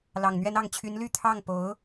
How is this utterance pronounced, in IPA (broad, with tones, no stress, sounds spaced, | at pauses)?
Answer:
l ɑ˨˩ ŋ n̪ ɥ ɛ˥ n ɑ˥˩ ŋ t͡ɕʰ y˧˥ n l y˥˧ t̪ʰ ɑ˥˩ ŋ p o˧˥ ʊ̯